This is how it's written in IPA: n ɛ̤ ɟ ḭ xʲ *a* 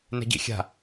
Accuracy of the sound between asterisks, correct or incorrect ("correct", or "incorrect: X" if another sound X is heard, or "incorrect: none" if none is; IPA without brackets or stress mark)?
incorrect: a̤